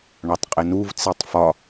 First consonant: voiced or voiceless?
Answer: voiced